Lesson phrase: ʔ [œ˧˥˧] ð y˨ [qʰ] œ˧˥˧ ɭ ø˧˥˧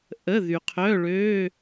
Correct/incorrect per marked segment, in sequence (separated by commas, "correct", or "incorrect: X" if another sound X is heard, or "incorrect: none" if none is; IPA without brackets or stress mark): incorrect: ə˧˥˧, correct